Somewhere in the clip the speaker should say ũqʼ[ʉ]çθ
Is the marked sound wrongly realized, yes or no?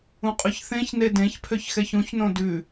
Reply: no